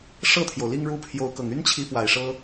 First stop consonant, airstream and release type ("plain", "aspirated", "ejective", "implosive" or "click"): aspirated